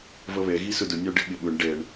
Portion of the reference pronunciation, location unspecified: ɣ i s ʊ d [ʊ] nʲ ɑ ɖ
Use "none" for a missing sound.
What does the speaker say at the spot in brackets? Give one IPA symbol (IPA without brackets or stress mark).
ʊ